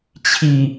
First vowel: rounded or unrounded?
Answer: unrounded